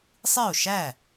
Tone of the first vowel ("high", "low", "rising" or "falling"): falling